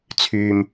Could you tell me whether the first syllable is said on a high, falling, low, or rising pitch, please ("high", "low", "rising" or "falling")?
low